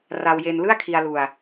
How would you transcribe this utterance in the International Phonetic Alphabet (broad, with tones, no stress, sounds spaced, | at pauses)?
r a˧ w j e˧ n l ɯ˥˩ a̯ kʰ i˧ a̯ l u˧ a̯